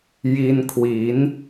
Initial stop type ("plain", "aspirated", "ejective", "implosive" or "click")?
aspirated